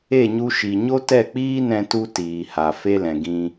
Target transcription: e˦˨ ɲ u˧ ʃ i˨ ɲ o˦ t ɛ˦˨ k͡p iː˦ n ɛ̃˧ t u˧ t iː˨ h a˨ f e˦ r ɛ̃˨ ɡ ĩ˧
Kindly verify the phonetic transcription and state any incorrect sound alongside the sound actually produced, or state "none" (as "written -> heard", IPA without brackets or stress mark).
r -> l